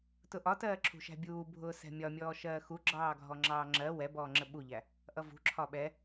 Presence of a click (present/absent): present